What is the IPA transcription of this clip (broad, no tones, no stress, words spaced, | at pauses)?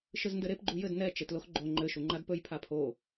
ʃɘzndɘɾep ɡ͡ǃujɘd nɛ t͡ʃetloxɡ͡ǃo ŋ͡ǃɘ ʃuŋ͡ǃadpɵj pʰapʰo